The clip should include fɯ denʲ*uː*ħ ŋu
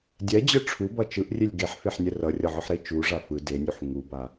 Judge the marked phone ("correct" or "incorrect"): incorrect